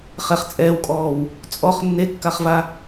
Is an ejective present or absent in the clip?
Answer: present